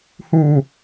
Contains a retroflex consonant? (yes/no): no